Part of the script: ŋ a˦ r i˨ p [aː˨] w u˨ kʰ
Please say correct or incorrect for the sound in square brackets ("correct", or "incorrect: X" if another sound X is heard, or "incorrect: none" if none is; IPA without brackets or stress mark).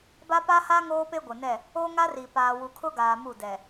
correct